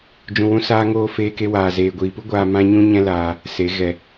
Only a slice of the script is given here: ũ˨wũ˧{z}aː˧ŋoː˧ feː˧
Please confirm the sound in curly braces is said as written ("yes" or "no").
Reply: no